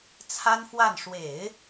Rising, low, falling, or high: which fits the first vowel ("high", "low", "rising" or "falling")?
high